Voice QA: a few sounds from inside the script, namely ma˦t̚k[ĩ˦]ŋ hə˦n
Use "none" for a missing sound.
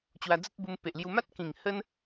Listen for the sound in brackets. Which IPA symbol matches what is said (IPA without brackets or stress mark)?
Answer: ĩ˨˩